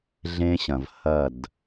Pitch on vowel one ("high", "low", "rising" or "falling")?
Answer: high